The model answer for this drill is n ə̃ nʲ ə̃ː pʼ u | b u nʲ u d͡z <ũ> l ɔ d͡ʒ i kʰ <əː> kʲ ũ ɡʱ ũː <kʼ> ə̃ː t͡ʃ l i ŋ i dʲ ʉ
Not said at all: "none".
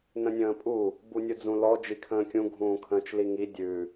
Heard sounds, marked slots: ũ, ə̃ː, kʰ

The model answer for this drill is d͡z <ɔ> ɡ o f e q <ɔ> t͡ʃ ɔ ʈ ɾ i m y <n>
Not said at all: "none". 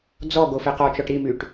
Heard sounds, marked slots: ɔ, ɔ, ʈ

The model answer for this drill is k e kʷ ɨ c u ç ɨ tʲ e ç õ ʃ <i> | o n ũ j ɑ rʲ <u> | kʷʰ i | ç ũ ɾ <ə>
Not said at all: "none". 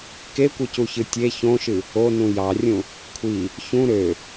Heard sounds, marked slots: ɨ, ũ, ø

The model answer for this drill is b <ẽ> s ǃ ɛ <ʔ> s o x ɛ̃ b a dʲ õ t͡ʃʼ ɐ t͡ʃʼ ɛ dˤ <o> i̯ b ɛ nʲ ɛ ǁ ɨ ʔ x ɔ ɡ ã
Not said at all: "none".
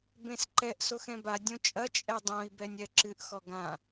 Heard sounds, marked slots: ẽ, ʔ, õ

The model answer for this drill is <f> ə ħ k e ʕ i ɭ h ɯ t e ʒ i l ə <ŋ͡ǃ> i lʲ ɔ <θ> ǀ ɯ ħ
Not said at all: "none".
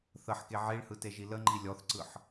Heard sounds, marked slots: θ, ŋ͡ǃ, θ

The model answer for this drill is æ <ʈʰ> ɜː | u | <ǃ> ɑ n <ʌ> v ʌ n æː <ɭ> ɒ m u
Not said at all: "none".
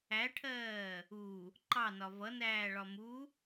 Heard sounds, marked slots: ʈʰ, ǃ, ɒ, ɭ

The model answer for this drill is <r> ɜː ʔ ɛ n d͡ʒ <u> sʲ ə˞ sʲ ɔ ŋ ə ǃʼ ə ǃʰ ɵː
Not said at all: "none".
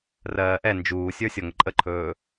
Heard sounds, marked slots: r, uː

